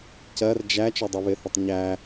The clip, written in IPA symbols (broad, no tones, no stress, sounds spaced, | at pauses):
c ɜ r d͡ʒ æ t͡ʃ ɔ dˤ u β ɪ θ ʌ tˤ ɲ æ